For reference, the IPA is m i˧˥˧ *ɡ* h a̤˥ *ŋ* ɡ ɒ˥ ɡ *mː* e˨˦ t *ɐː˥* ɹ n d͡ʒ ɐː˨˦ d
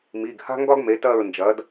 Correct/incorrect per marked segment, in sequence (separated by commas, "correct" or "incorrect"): correct, correct, incorrect, incorrect